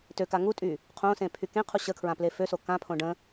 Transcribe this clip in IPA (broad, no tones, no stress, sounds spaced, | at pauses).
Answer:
t ø k a ŋ u tʼ y | qʰ õ s ẽ pʰ y k ẽ qʰ u ɕ ə kʰ ɹ ã p l e f ø s o k ã pʰ õ ɖ ə̃